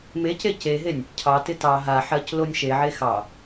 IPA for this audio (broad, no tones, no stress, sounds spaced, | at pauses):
m e c e c e ɦ e nʲ | cʰ ɑ t ɪ t ɑ ɦ a ħ ɜ c l o nʲ ʃ e ʕ e x ɑ